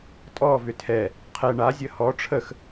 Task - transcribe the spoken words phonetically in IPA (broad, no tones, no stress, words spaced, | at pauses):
tʼɔ vʏtʰɛ | qʰɛ ɳazʲə hɔ ʈ͡ʂʰəx